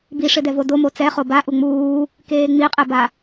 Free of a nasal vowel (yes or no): yes